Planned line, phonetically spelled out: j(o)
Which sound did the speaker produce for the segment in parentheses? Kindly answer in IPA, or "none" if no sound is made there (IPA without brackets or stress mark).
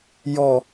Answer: ɔ